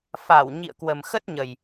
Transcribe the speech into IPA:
f a˧˩ w ɲ ḭ˧˨ ə̯ k w ə˨˩ m x ə˦˥ t̚ ɲ ə˨˩ j

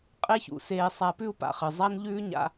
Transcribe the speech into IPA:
qʼ e˥ ç ṵ˩˧ s eː˧ sˤ a˧ p ʉ˥ u̯ p a̰˩˧ χ ɨ˩ zˤ a˥ n ʎ ʉː˥ ɲ a̰˧˥

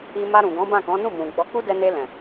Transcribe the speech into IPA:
i˧ m a˧ ɾ ũ˨ ɡ ɔ̃˨˦ b ã˦˨ k ɔ̃˨˦ n ũ˦˨ m ũ˨ ɡ͡b ɔ˨˦ k͡p u˦ d ɛ˧ n e˧ l ɛ̃˨

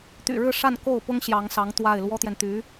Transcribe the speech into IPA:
t̪ y̰˨˩ ɻ ɻ̩˥˧ ʂ a˥˧ n k o˥˩ ʊ̯ p ʊ˥ ŋ ɕ j ɑ˧˥ ŋ s ɑ˧˥ ŋ t̪ w a˥˩ ɪ̯ l w ɔ˥ t̪ j ɛ˨ n t̪ y˧˥

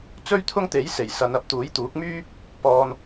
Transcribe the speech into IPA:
t͡s ɵ˥ ɥ t̪ʰ ʊ˥ ŋ t̪ e˨˥ j s e˨˩ j s ɐ˨˧ n ɐ˨˥ p̚ t̪ uː˨˥ j t̪ uː˨˥ k̚ m yː˥ | p ɔː˧ n

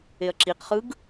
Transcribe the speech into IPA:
e ɐ̯ ǁ i q χ ɯ ɡ

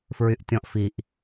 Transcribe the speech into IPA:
f ɹ y ʔ tʲ ɔ̃ ʔ f i ʔ

